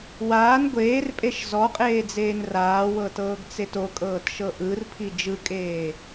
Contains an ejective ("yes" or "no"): yes